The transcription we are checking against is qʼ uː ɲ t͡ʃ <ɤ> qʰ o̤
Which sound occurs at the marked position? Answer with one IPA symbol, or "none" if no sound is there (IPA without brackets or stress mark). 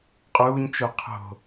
o